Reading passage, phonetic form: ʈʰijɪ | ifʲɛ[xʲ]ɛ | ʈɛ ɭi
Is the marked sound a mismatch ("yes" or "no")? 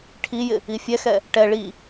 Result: yes